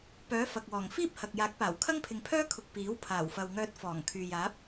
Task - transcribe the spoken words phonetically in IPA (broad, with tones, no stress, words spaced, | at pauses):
pœː˨˥ fɐ˨k̚wɔː˨˩ŋ fiː˥p̚hɐ˨k̚jaː˨˥k̚paː˨˩w kʰɐ˥ŋpʰɪ˨ŋpʰœː˥kʰʊ˨k̚ piː˨˥w pʰaː˨˩wfɐ˨wŋœː˧t̚ fɔː˨˩ŋ kʰyː˨jaː˨˥p̚